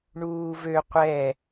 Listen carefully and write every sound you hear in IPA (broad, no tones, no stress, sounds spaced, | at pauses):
ɳ uː v ø qʷ ɛ